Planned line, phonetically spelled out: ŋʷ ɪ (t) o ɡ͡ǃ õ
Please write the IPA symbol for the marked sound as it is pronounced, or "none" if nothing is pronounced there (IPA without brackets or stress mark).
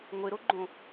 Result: ɾ